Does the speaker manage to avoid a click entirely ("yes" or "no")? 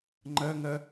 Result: no